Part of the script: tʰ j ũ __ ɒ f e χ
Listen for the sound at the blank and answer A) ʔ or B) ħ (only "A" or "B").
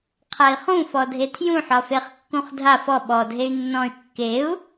B